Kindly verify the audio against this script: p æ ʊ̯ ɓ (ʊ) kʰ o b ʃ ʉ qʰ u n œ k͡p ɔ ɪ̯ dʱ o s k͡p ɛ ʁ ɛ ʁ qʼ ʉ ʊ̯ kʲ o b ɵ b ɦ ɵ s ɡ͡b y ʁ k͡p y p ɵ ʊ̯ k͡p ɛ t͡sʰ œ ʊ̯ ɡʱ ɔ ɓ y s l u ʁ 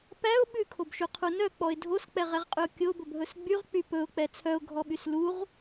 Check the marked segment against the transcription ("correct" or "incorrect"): incorrect